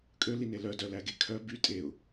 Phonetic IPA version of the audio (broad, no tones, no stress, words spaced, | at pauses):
kʼøline lœdœlæɡe kʰœ by tʼeʊ̯